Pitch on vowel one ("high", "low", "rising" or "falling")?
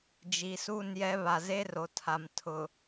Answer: rising